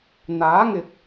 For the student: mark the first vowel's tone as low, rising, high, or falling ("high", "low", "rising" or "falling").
rising